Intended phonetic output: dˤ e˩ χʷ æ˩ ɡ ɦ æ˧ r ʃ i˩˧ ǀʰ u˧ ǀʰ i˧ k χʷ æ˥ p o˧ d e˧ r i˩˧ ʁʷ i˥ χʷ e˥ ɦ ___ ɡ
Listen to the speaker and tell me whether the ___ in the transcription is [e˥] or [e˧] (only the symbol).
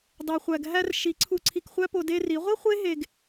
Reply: e˧